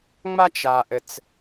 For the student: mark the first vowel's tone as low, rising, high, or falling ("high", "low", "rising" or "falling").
high